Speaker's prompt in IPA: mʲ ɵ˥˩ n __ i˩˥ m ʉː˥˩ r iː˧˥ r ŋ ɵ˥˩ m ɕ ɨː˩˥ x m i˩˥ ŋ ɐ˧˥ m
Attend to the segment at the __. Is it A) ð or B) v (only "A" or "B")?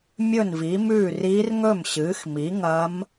B